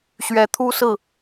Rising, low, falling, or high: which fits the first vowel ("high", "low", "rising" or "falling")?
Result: rising